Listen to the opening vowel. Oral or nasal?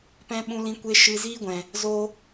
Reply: nasal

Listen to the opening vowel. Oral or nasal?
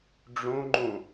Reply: nasal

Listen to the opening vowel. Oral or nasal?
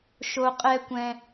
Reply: oral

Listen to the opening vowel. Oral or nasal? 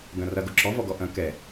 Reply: nasal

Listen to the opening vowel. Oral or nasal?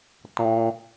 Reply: nasal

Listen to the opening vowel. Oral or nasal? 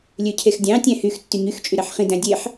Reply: oral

